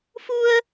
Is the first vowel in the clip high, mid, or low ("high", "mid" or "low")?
high